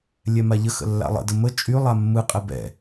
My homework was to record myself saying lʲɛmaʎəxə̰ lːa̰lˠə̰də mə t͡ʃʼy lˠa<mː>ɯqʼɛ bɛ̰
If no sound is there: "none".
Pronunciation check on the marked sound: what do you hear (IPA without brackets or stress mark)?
mː